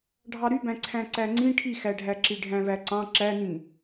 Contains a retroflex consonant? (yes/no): yes